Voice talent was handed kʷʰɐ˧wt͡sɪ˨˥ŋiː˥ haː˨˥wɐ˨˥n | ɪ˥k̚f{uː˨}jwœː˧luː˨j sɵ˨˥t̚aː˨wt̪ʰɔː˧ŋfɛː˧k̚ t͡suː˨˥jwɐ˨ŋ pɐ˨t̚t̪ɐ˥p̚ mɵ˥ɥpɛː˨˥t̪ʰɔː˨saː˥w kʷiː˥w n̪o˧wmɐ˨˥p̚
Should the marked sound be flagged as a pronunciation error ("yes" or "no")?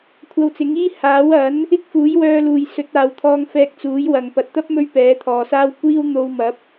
yes